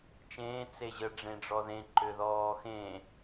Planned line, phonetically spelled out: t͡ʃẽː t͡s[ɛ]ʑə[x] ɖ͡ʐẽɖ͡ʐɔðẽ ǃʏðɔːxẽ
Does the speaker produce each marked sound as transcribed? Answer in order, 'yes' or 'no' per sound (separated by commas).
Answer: no, no